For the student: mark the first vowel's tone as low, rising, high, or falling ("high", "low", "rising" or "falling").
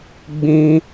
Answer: high